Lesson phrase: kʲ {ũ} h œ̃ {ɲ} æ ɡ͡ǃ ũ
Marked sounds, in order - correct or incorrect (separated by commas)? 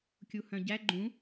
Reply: incorrect, incorrect